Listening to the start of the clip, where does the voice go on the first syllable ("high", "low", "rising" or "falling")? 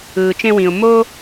low